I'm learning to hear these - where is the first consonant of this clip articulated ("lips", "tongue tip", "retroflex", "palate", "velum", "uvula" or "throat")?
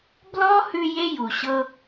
lips